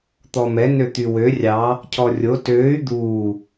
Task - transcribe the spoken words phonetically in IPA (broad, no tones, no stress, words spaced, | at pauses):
t̪ɔmɛ nøt̪ywø rʲɑ | cʰɔrʲo tøːy̯ d̪uː